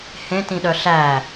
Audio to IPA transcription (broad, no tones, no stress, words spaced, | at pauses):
hẽtĩɗœ ɬæ